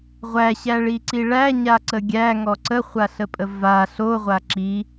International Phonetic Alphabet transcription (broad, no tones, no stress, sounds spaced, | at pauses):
ʁʷ æ ɕ æ ɭ i ǀ i ɭ æ ɲ a ǀ ə ɡʲ æ ŋ ɔ ǀ ə χʷ a ɬ ə pʼ ə v a ɬ o ʁʷ a ǁ i